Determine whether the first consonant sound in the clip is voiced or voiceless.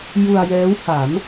voiced